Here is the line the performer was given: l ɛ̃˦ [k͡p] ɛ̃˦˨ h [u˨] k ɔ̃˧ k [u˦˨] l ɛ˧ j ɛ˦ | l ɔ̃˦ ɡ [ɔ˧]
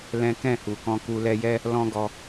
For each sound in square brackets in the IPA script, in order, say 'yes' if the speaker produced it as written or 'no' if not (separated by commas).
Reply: no, yes, no, yes